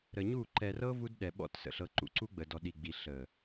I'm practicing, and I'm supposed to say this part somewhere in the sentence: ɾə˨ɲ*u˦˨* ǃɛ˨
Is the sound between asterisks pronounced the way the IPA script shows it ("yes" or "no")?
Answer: yes